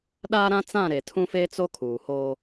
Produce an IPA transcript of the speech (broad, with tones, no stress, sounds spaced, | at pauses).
ɗ aː˦ ɾ ã˦ t͡s ã˦˨ ɾ e˨ tʰ ũ˦ f e˦ t͡s o˦ kʰ uː˨ h o˦